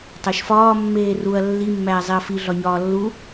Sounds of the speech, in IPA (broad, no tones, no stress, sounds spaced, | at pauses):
tˤ æ ʃ f ɒː mː eː r u ɐ̯ lː i mː æː zˤ e ɐ̯ f i ɮ ɒ ɲ ɒː lː u